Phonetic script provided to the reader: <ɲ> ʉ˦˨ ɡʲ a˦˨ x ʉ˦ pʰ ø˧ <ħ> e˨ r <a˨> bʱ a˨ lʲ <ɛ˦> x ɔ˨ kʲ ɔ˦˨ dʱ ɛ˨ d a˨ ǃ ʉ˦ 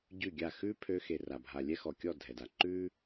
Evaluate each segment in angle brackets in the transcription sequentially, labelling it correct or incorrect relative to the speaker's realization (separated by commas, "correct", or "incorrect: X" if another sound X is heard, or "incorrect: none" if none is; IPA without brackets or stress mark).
incorrect: ɟ, incorrect: x, correct, correct